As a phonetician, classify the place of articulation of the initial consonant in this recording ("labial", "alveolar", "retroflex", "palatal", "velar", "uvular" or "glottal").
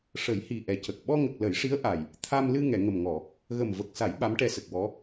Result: retroflex